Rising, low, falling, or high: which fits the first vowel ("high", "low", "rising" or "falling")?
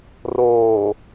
low